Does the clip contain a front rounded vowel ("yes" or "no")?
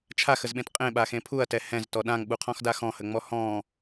no